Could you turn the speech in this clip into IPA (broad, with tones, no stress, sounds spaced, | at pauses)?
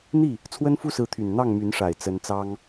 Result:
n̪ i˥˩ | t͡sʰ w ə˥ n f u˥ s ɹ̩˧˥ t̪ʰ y˨˩ n n̪ ɑ˥˩ ŋ m y˧˥ n ʂ a˨˩ ɪ̯ t͡s ə˧˥ n t͡s ɑ˥ ŋ